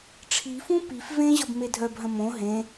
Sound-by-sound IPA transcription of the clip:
ʈ͡ʂʰ i f ũ p i f v ẽ ʑ ʌ b m e dʱ œ b ɦ ə̃ m õ ɦ ẽ

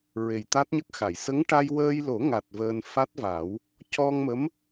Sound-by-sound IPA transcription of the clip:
ɹ e˨˩ j t̪ a˦˥ t̚ ɲ ə˦˥ k̚ x a˨˩˨ j s ə˧˥ ŋ ʈ a˧ j w əː˧ j l o˨˩˦ ŋ a˨˩ t̚ v əː˧ n f a˦˥ t̚ v a˨˩˦ w | c ɔ˧ ŋ m ə˧˥ m

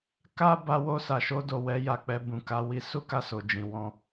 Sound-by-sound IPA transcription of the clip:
k a˦ b a˧ w o˧ s a˨ ʃ o˧ d o˨ w ɛ˨˦ j a˧ k͡p ɛ˧ b ũ˨ k a˧ w i˧ s u˦ k a˧ s o˨ d͡ʒ ĩ˨ w ɔ̃˧

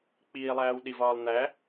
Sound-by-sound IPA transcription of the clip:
k͡p iː lˠ æː w ɗ i v ɒː lˠ n̪ æ

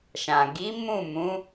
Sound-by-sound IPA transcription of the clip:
ʃ ã˨ ɡ i˨˦ m ũ˦˨ m ũ˨˦

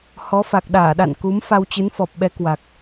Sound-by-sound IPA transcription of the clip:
h ɔ˨˦ f a˨˩ k̚ ɗ aː˧˩ ɗ a̰˧˨ n k u˨˦ m f a˧ w t͡ɕ ɨ˨˦ n f ɔ˨˩ p̚ ɓ ɛ˨˦ k w a˨˩ k̚

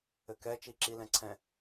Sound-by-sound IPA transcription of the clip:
ɘ k ɛ t͡ʃ i ǁ i l ɛ̃ ǀʰ ɛ̃

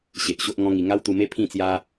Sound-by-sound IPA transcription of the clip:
ɕ e˨ ʔ ɕ o˦ ʔ ŋ ɔ̃˦ ŋ i˧ ŋ a˦ w t̪ u˧ m e˦ pʰ ĩ˥˧ t͡s j a˦

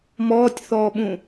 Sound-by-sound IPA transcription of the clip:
m ɔː tʲ θ ɔː ɓ ũ

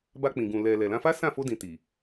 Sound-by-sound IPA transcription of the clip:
b a˧ k͡p ĩ˨ ɡ ũ˨ l ɛ˨ l ɛ˨ l ã˧ f a˦ s ã˦˨ f o˧ d ĩ˨ t i˨

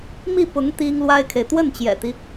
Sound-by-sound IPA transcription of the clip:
m i˥˩ p ʊ˧˥ ŋ t̪ i˥ ŋ l w a˥ ɪ̯ kʰ e˨ ɪ̯ t̪ w ə˥˩ n t͡ɕ j ɛ̰˨˩ t̪ i˦

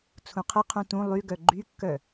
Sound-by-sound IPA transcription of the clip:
t͡sʰ ũ qʰ ə qʰ ũ t ũ lˠ y ɡ œ ɡ͡ǃ y kː œ

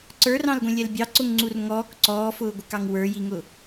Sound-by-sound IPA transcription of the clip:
ǀ ə˞ r ɑ̃ l ɡʷ ɛ̃ lʲ ɛ l bʲ ɑ ǀ ʊ ŋ ŋ͡ǀ u r ŋ ɔː k ǀ ɔː f ʊː ɡʷ ɪ k ɑ ŋ w ə˞ j i ŋ ʊ

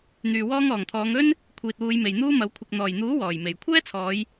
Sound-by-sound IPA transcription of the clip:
n̪ yː˨ w ɔː˧ ŋ ɔː˨˩ ŋ t̪ʰ ɔː˨˧ ŋ ɵ˥ n | kʷʰ iː˨ t̚ w uː˨˧ j m e˨ j n̪ uː˥ m ɐ˨˥ w kʷʰ ɪ˨ k̚ n̪ ɔː˨˩ j n̪ uː˨˥ w ɔː˨˩ j m e˨˩ j kʷʰ ɛː˥ t͡sʰ ɔː˨˧ j

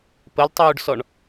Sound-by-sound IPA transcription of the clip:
p ə l tˤ uː ɖ s ɔ ɳ

